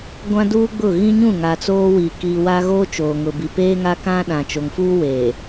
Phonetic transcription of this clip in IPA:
ɡʷ ã˦ d uː˦ ɡ͡b ʊ˦˨ ɣ ĩ˦ ɲ ũ˦˨ ŋ a˨ t͡s oː˦ w i˨ k i˨ w a˦ ɣ oː˦ t͡ʃ oː˨ ŋ ʊ˨ b i˨ p eː˦ ŋ a˦ k ã˦ ɗ ã˨ t͡ʃ o˨ ŋ f uː˦ w eː˨

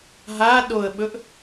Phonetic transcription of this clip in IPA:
ɦ a ɗ o ə̯ ɓ ɵ ʔ

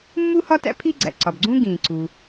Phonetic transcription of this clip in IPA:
mː u˥ h ɒ˥ t æ̰˥ pʰ i˥ ɡ͡ǀ æ̰˩ ǀ ɒ˩ b ɡ͡ǀ ũ˥ ɡ ĩː˩ ǀ u˩

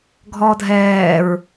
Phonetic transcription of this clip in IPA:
ɡʱ ɔ dʱ ɛː ɹ

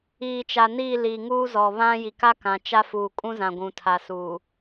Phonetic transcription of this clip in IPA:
iː˨ t͡ʃ a˨ n iː˦˨ l i˨ ŋ uː˦ z ɔ˨ β ã˦ j i˨ k a˦ k ã˨ t͡ʃ a˦ f uː˨ kʼ ũ˦ z ã˨ ɡʷ ũ˨ tʰ a˨ s uː˨

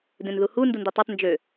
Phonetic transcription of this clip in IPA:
d ẽ n ð u h u n d u n d i tˤ o tˤ n d͡ʒ ø

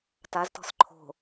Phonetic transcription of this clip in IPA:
t a z t ɔ̤ s ǃʰ o̤

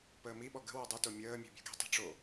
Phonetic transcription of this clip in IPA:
p əː m i ɓ ɔ ɡ ə̤ w o dˤ ɨ t o mʲ əː mʲ ṳ bʲ ṳ ɡ i̤ tˤ i̤ ʈ͡ʂ o

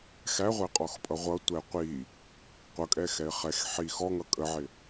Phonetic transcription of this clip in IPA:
x æ ʁʷ ɛ qʼ ɔ x pʼ ʌ ʁʷ ʌ tʷ ɛ qʷ i | qʷ ʌ kʼ ɛ x ɛ ɪ̯ χ ɛ x ħ i x ɔ ŋ ʌ kʼ ə ʕ ɪ

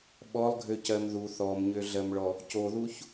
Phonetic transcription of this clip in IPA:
ɓ ɔ lˠ ɡʱ ø c ɜ m ð u θ ɔ m ɲ ø ɮ ɜ m ɭ ɔ | c o ð u ç

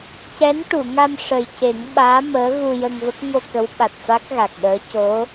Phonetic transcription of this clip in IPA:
c ɛ˧˥ n ʈ u˨˩˨ ŋ a˧ m ʂ ə˨˩ j c e˨˩˦ ŋ ɓ aː˧˥ m əː˧˥ ɣ u˧ j ə˧ ŋ v ə˦˥ k̚ ŋ o˧ k ə˧˥ w ɓ a˨˩ t̚ f a˦˥ k̚ ɣ a˨˩ k̚ ɗ əː˧˥ c o˧˥

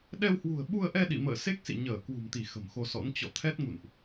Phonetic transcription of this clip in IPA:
ɗ ɛ˧ w h w ṳ˨˩ ə̯ ɓ u˧ ə̯ ʔ ɛ˧ ɗ ḭ˧˨ m ə̰ː˧˨ s e˦˥ k̚ s ḭ˧˨ ɲ əː˧˩ k w ṳ˨˩ m t̪ i˧˩ x ə̤˨˩ m x o˧ s ɔ̰˧˥ n t͡ɕ ɔ̰˧˨ t̪ʰ ɛ˦˥ t̚ ŋ ṵ˧˨ n ʔ

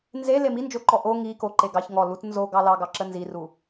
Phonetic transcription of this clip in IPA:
n z e l e m i n d͡ʒ o ǃ ɔ ʔ o ŋ i k o ǃ e ɡ ɑ ç ŋ ɔ l u t n z o ɡ ɑ l ɑ ɡ ɑ ǁ ə n z i r u

